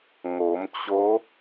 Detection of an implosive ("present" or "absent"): absent